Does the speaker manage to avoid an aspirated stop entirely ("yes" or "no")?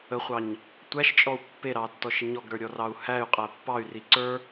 yes